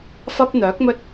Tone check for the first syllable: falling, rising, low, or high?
high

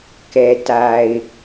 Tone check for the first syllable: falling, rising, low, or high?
low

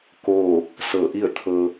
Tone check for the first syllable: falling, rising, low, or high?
falling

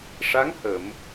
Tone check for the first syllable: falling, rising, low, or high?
rising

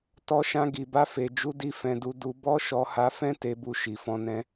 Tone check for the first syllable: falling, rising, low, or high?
high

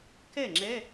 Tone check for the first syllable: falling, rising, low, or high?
falling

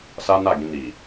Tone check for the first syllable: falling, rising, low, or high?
high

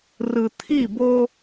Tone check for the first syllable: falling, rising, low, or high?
low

